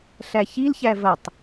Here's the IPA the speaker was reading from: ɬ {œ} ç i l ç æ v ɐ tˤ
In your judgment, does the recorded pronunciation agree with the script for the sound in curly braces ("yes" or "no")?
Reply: no